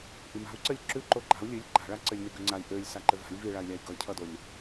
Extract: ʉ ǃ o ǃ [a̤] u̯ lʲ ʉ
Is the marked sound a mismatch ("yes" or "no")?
no